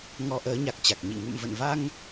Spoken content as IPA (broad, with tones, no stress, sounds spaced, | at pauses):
ŋ ɔ˧ ʔ əː˨˦ ɲ a˨˩ k̚ t͡ɕ a˨˩ k̚ ɲ ḭ˧˨ ŋ ṵ˧˨ m v ə̰˧˨ n v a˧ ŋ